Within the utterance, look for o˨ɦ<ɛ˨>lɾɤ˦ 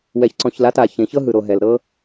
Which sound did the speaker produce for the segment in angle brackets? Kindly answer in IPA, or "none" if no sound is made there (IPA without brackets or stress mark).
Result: ɛ˨